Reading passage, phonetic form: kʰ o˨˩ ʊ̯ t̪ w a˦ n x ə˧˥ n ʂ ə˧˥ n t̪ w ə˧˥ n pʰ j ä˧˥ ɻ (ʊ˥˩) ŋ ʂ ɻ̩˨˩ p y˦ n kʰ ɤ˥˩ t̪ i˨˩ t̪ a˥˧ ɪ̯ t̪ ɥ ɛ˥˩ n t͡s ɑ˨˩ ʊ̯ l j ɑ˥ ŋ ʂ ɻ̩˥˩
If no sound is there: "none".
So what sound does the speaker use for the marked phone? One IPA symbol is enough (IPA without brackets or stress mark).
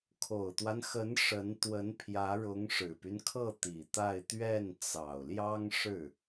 ʊ˧˥